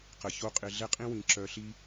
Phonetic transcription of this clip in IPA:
q ə˨ ç o˦ qʼ ɪ˧ ɮ ɛ˦ qʼ ĩ˦ w ĩ˨ ǁ œ˧ ɬ i˦

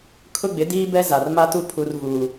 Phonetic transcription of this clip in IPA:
kʰ ʊ˦ ɡ͡b ɪ˨˦ d iː˦ b ɛ˦ z a˨ r m a˦ t u˦ pʰ u˦ r v uː˦

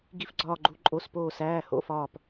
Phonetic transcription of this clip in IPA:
ɡ i˧˩ f ɡ͡ǀ ɒː˧˩ ɡ͡ǃ u˩˧˩ ǃʼ o˩˧˩ s p oː˧˩ s æː˩˧˩ h o̰˩˧˩ f ɒː˧˩ p

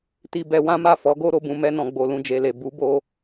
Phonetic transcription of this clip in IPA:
t i˧ b ɛ˧ w ã˦ m a˦˨ f ɔ˨˦ ɡ o˦ ɾ o˦ b ũ˧ m ɛ˧ n ɔ̃˨ ɡ͡b o˨ l ũ˧ d͡ʒ e˨ l e˨ b u˨˦ b o˧

